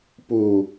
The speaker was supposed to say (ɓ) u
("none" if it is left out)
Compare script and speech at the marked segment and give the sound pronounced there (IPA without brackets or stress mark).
p